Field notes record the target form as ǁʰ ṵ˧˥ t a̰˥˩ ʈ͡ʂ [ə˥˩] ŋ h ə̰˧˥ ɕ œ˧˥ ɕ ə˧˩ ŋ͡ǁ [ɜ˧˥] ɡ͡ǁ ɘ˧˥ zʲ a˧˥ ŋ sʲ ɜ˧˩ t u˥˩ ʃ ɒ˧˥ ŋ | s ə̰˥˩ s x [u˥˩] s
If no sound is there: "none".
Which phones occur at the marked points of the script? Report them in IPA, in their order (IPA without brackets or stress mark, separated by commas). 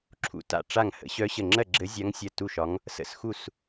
a˥˩, ɜ˥˩, u˥˩